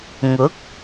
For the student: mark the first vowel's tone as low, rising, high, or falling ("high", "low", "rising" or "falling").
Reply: rising